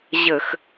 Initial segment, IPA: ʑ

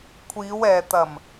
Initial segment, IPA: kʷʰ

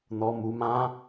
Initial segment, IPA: n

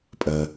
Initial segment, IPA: pʼ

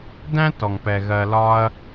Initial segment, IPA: d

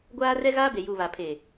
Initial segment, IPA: ɡʷ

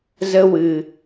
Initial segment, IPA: z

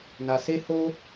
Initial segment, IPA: n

